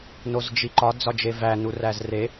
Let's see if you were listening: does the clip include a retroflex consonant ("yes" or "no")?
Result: no